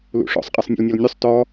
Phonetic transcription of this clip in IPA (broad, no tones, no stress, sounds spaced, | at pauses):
l ṵ ʂ ɔ̰ sˤ qʼ ɐ sˤ nʲ ṵ l nʲ ɒ l nʲ ʉ sˤ t ɔ